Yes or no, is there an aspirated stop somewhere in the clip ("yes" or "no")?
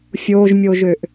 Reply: no